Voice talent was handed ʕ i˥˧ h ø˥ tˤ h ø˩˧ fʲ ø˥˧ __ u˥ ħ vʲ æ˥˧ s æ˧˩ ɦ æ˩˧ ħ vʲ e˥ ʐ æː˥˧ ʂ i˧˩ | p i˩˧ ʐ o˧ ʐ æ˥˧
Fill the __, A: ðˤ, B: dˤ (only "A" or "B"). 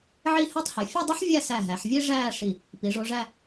B